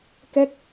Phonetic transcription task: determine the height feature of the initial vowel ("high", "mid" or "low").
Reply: mid